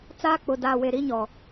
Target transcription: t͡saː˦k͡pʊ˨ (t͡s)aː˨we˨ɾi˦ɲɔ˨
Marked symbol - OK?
no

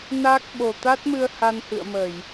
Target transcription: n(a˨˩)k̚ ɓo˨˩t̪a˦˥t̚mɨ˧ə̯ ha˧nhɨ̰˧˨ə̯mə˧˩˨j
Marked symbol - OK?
no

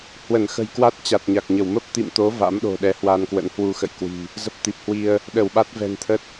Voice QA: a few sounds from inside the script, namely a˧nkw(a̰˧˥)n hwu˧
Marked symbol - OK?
no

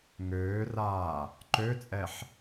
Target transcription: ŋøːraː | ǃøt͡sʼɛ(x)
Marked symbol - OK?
no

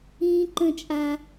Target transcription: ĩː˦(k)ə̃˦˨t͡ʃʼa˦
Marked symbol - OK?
no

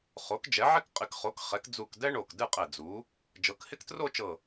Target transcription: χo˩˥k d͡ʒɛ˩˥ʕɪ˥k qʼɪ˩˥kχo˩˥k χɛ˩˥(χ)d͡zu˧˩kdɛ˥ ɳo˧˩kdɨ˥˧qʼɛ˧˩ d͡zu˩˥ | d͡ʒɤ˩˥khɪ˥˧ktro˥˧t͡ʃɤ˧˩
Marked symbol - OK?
no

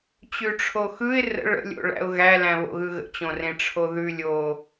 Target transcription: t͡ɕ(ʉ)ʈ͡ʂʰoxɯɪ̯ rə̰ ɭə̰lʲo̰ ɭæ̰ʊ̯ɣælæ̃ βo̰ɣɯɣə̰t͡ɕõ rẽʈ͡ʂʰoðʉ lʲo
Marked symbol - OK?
yes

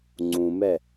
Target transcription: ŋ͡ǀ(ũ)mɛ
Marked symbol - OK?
yes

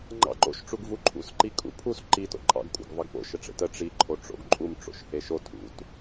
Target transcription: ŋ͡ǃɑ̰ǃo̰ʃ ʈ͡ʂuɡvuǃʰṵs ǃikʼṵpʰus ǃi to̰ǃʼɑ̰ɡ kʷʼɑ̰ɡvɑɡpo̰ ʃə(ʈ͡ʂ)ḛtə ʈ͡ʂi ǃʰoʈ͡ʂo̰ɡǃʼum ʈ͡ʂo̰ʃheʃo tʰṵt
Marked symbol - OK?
yes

